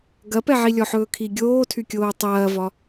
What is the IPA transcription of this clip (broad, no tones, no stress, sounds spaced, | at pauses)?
ɡ ɐ p ɛ ʕ i lʲ ɔ ħ ɵː kʰ i ɡʲ oː tʰ y kʲ oː tˤ ɐː v ɒ